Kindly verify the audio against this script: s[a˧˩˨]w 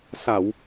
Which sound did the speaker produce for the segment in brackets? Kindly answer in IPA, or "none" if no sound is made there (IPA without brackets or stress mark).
a˧˩˨